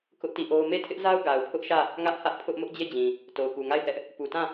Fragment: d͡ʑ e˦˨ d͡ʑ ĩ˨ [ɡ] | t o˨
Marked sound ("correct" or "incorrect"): incorrect